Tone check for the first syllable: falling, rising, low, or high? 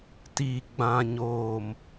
low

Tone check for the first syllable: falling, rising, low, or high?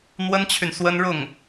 high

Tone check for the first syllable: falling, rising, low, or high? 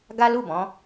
high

